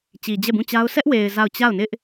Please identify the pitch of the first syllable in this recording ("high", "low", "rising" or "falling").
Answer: low